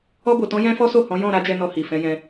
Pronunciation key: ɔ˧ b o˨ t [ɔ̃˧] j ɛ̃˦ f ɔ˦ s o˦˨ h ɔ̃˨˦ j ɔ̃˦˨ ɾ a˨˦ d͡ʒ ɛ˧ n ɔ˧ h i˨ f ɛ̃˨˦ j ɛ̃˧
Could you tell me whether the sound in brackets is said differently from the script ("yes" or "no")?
no